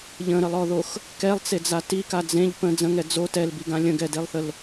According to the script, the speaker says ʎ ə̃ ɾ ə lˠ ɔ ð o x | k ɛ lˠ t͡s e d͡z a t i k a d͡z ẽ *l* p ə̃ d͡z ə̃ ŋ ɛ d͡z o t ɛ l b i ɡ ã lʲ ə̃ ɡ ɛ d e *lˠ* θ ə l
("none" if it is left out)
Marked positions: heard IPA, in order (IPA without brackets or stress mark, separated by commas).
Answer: ʎ, lˠ